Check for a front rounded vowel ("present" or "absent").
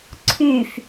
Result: present